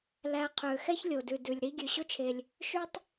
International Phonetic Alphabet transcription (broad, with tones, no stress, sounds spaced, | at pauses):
l æ˨ qʰ ø˩ x ɛ˥ ç lʲ o˩ d ʉ˩ d ʉ˩ lʲ ɾ i˦ ɡʲ ʉ˩ ɕ ɵ˦ t͡ʃʰ e˩ lʲ | ʃ ʉ˦ tˤ